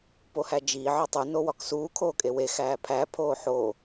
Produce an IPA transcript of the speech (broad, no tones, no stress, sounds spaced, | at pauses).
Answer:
p o h æ d͡ʒ iː ʕ ɒ tˤ u n o w ɒ k s uː kʰ oː kʼ e w e x æː pʰ æ pʰ oː ħ o